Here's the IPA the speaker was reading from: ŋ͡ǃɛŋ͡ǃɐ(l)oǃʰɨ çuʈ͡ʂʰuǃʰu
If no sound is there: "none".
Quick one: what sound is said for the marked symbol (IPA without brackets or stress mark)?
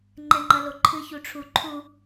l